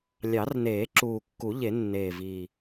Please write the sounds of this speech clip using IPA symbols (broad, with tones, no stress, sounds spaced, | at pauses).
lʲ ɑ˨˩˦ r n eː˨˩˦ ǁ uː˨˩ kː u˨˩˦ ʎ e˨˩˦ nː eː˨˩ v iː˨˩